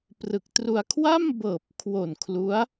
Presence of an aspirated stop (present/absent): present